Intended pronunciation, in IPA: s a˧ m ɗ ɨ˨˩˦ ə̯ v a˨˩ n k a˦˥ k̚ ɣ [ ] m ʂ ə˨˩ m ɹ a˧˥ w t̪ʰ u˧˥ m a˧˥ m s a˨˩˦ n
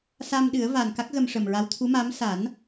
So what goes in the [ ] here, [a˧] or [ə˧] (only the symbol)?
ə˧